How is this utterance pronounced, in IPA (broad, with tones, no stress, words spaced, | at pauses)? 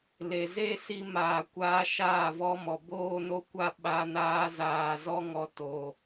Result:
le˨ze˦ si˧ maː˨kʷaː˧ ʃaː˦˨vɔ˦mɔ˨ boː˦no˦kʷa˦ ɓa˧naː˧ zaː˨zɔ˧ŋɔ˨˦ to˨